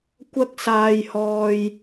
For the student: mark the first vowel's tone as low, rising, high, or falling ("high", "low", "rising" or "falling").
high